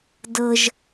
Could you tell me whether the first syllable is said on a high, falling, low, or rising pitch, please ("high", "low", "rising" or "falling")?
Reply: high